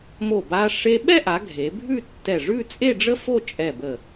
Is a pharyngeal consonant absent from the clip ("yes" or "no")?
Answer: yes